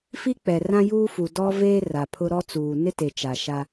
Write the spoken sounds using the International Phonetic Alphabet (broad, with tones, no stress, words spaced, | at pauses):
fi˦k͡pɛ˨ rã˦juː˦fu˨ dɔ˦veː˦ ra˨pʰʊ˦ ɾɔ˦ t͡suː˨nɪ˦te˨ t͡ʃa˨ʃa˦